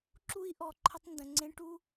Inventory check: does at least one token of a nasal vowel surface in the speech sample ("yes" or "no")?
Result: yes